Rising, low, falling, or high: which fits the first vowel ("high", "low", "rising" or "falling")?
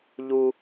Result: low